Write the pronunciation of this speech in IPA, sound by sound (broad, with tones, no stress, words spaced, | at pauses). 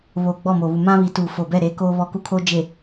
βoː˨ɡ͡bɔ˦˨moː˨βu˨ mã˦βi˨˦tuː˨ fo˨bɛ˦˨ ɾe˨˦ koː˦βɔ˦ku˦kʰoː˦ d͡ʒe˨